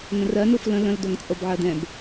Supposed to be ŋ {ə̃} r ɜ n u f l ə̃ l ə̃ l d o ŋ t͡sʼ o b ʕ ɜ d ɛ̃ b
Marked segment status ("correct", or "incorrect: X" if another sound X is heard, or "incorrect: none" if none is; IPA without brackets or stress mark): correct